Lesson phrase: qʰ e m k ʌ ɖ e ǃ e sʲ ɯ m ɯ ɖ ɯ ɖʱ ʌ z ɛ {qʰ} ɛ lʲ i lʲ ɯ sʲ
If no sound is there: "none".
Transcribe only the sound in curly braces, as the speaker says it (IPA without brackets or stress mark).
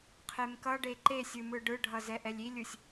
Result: ʔ